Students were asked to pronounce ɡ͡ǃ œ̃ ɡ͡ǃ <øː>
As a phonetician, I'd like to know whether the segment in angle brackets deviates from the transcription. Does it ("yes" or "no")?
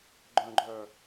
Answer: yes